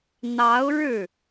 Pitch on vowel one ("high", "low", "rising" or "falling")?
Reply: rising